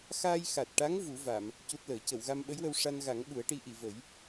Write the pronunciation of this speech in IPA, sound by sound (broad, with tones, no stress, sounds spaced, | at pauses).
x aː˧ j x a˨˩ t̚ ʈ a˧˥ ŋ v u˨˩˦ v a˨˩˨ m | c u˦˥ t̚ l əː˨˩˦ c ə˨˩˨ w ɣ a˧ m ɓ ə˧˥ j w ə˧ w ʂ a˧ n ɣ a˨˩˦ ŋ ɓ u˨˩˦ ə̯ ʈ i˧˥ ʔ i˨˩˨ v ə˨˩˦ j